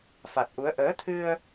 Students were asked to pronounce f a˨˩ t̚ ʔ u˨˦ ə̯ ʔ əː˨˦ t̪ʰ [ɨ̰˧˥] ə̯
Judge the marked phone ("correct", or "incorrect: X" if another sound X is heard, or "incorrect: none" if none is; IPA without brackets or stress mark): incorrect: ɨ˧